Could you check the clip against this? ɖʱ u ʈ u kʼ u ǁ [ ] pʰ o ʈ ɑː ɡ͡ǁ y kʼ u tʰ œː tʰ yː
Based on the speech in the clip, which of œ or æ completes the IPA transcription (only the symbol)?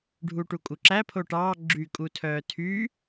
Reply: æ